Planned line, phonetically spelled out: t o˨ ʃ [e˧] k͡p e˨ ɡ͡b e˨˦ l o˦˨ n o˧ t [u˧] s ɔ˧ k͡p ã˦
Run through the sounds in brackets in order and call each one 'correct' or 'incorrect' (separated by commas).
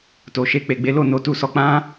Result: correct, correct